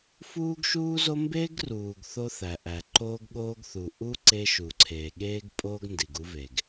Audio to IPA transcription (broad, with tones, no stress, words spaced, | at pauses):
fuː˦ɡʃuː˦zo˦ mbe˦ɡ ruː˨ɡ θo˦θæ˨ʔæ˨ ǃoː˦ɡɠoː˦ɡθu˨ ʔu˦ ǀe˦ʃu˨ǀʰeː˨ ɠeː˦ɡ pʼoː˦ɡndi˨ɡ u˦ve˨ɡ